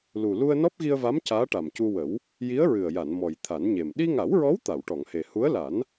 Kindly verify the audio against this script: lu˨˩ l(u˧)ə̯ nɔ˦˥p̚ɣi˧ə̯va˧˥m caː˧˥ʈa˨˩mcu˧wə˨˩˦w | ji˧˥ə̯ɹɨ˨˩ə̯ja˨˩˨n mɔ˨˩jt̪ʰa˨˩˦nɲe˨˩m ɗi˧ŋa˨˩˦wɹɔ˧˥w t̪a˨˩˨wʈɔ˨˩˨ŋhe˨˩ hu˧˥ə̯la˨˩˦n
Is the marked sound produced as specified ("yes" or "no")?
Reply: yes